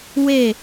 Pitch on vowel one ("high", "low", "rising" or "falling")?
falling